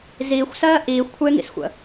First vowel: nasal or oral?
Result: oral